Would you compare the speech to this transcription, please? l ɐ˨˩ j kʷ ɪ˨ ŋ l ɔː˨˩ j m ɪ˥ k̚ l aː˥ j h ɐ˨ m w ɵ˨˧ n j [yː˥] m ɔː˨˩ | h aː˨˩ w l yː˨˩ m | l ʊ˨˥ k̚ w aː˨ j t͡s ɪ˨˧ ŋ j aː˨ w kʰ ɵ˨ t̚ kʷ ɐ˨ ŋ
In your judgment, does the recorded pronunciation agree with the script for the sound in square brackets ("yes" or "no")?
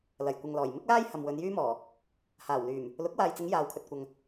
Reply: yes